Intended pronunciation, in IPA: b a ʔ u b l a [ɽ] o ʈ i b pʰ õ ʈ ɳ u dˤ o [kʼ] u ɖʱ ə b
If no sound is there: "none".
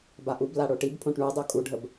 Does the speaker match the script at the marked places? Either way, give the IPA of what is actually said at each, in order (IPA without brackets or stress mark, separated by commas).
ɽ, kʼ